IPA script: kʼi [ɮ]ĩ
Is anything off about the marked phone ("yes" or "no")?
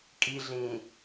no